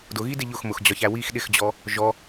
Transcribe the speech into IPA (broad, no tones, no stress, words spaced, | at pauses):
dʊɣidɪ ʎʊxmʊxd͡ʑɒçæ wix ɗɪxd͡ʑɔ | ʒɔ